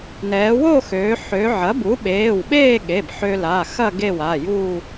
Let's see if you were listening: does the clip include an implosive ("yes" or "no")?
yes